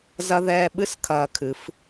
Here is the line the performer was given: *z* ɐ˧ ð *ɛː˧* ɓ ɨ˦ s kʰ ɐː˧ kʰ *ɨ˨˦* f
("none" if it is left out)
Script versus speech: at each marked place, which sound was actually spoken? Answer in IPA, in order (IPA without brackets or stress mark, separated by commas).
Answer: z, ɛː˧, ɨ˨˦